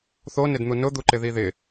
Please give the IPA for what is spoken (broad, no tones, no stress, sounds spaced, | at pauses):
θ o n ɪ d n̪ u n ʊ d̪ u ǃ ɪ ð i ð ɪ